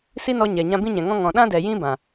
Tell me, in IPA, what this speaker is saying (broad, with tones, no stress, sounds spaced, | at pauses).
s i˦ n ɔ˧ ɲ ɛ˨ ɲ ã˧ b ĩ˦ ɲ ɛ̃˨ ŋ ɔ̃˧ ŋ ɔ̃˨ ɗ ã˦ d ɛ˨ j ĩ˦ b ã˨